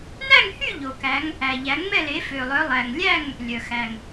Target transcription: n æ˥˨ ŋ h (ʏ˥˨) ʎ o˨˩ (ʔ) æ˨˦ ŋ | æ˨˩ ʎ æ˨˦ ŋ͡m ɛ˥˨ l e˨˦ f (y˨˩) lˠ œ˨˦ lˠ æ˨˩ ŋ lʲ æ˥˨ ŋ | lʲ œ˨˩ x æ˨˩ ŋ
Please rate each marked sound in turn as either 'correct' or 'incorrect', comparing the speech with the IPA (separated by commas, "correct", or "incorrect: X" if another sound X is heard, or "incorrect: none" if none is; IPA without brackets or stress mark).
incorrect: y˥˨, incorrect: k, incorrect: ø˨˩